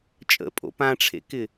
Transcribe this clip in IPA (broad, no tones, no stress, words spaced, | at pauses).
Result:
t͡ʃʼə̰pʼo̰ pãʈ͡ʂʰḛkɪ